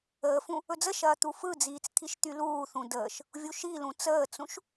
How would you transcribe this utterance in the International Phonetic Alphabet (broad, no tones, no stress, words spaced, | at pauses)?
əːfũ | ɵd͡zəʃɐː t̪ufɯd͡ziːt͡s t̪ʰiʃt̪yluːθũ dəːʃ | vʲuʃilũ t͡səːt͡sũʃ